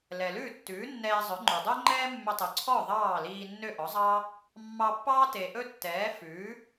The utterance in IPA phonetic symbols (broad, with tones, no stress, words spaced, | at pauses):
lɛ˩lʉː˥˩tːʉː˩˥ nːɛː˧zˤœ˩˥ŋ͡ǃʉ˩ dˤø˥ŋ͡ǃɛː˥mːɵ˧ tˤø˩ǀʰɔ˥˩ ðˤɑː˥˩liː˧ nːø˥˩ʔɔ˩˥zˤɑ˥ | mːɑ˧pːɑː˥te˩ ʔɵ˥tːɛː˩˥ fʉː˩˥